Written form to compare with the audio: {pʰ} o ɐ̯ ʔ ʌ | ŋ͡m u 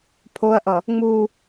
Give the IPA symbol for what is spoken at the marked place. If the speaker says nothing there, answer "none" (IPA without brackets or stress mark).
pʰ